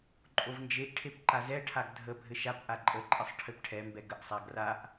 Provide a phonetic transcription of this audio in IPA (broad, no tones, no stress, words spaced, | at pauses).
ǃʼovnd͡ʒeʔʈʰep ǃazɛʈʰaɡ dʱə bʱɘʃapʔa ǃʼəǃʼəsˤ ʈʰɘpʈʰɛmbɛ ɡəʔsˤa ɡraʔ